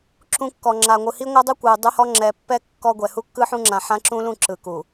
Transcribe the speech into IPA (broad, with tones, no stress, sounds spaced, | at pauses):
ǁ ũ˨ kː ɔ˨ ŋ͡ǁ a˨ ŋʷ ɯ˨ h i˦ ŋʷ a˦ dˤ u˦ kʷ ɯ˨ u̯ dˤ u˦ h ɔ˦ ŋ͡ǁ ɛ˨ pː ɛ˦ kː ɔ˦ ɡʷ ɛ˨ h u˦ kː ɯ˦ ħ ũ˦ ŋ͡ǁ ã˨ ħ ã˦ ǁ ũ˦ l ũ˦˨ ǁ ɯ˨ k u˨